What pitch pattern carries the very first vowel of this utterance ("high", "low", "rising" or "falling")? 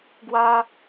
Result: high